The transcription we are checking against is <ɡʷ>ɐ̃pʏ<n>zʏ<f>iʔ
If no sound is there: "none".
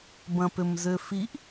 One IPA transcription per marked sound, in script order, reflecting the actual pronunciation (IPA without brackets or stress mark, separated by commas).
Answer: b, m, f